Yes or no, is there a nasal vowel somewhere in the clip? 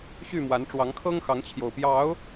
no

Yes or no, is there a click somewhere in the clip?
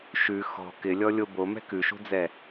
no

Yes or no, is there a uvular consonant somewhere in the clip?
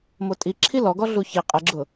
yes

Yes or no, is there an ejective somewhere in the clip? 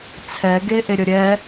no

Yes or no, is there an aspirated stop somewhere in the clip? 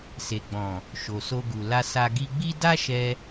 no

